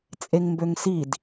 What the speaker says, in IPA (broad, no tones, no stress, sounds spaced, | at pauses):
t͡sʼ e ŋ m b ø ŋ s i d